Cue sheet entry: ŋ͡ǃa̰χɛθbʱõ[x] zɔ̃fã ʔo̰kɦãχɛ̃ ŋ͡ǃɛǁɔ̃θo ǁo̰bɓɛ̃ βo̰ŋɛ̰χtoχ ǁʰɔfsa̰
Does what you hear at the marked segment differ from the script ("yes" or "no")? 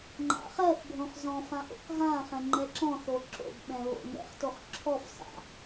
yes